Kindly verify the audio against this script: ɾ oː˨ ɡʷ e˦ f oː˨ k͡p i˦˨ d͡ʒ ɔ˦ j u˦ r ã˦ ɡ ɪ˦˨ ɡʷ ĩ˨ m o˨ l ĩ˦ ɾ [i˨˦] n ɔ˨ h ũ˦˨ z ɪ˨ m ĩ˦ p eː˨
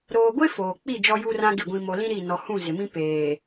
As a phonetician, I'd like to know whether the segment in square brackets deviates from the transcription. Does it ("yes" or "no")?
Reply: yes